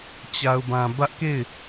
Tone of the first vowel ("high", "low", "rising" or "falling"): low